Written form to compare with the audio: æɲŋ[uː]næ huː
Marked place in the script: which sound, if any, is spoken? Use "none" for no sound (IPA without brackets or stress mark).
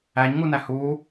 u